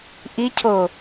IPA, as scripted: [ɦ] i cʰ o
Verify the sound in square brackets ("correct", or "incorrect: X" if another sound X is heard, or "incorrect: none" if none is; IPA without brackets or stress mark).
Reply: incorrect: ʔ